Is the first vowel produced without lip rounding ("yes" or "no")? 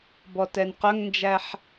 no